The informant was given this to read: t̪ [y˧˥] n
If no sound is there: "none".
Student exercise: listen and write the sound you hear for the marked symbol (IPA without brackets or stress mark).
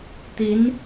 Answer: i˧˥